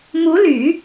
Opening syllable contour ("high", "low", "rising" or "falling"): rising